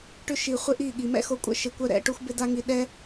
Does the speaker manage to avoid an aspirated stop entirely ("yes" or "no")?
yes